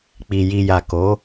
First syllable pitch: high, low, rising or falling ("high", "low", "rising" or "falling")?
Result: low